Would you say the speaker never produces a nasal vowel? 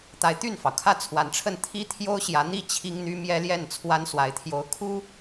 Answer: yes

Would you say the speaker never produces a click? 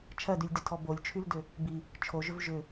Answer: yes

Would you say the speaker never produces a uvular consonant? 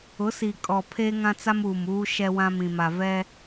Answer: yes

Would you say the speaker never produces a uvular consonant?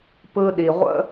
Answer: no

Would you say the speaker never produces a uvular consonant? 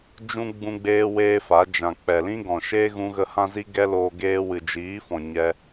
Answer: yes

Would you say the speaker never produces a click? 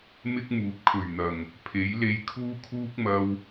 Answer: yes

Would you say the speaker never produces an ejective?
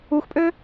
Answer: no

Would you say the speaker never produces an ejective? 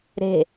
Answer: yes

